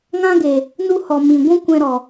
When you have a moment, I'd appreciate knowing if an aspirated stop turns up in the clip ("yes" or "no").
no